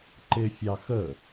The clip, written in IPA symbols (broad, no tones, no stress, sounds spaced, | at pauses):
ǃ ɪ fʲ ɑ x ə